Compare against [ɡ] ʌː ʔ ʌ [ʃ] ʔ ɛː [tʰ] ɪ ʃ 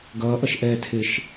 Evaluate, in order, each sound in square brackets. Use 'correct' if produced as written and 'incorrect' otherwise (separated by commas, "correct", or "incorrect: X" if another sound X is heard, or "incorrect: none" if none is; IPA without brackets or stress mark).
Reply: correct, correct, correct